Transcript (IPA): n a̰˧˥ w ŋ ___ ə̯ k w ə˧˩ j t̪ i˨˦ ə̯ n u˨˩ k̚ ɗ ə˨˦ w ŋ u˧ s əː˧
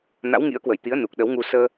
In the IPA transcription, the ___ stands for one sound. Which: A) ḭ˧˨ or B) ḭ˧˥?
B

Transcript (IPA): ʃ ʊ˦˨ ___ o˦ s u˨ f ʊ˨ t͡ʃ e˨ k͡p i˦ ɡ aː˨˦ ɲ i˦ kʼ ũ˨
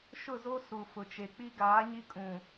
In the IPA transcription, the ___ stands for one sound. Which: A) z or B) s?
A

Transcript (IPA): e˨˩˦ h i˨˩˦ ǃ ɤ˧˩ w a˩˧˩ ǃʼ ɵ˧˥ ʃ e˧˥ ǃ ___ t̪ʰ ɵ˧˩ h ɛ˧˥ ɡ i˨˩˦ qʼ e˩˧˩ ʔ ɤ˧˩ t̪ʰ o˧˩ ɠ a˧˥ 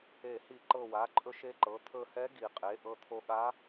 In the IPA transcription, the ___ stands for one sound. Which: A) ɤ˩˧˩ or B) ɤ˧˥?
A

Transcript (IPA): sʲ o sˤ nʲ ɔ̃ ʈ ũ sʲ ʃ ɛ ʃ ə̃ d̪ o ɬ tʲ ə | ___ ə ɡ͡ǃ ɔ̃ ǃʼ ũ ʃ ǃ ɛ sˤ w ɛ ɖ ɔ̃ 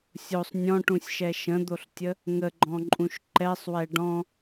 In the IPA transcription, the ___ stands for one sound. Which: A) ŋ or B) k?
A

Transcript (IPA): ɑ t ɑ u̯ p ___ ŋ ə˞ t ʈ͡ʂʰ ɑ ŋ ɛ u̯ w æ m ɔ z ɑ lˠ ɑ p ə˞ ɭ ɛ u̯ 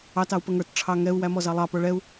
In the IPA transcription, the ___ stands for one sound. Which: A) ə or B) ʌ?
A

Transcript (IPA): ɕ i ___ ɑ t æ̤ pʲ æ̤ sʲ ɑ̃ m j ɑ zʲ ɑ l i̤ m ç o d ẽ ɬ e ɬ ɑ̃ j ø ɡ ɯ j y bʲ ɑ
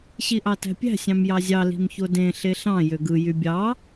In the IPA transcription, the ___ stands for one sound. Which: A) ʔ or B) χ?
A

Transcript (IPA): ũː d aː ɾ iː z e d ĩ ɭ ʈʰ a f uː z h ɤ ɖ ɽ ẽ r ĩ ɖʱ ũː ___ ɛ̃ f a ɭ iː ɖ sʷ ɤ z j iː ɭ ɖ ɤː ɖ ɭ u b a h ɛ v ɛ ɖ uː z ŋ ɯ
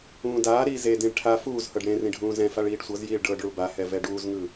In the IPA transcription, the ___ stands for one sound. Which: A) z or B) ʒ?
A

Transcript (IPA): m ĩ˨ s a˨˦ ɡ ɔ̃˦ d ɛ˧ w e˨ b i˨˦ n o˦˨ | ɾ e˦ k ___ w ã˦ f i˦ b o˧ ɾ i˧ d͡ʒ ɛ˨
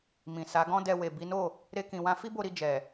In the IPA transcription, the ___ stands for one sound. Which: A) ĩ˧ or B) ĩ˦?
A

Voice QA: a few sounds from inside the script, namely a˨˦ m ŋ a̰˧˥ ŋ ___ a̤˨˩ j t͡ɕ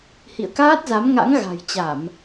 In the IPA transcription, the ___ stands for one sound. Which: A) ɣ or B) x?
A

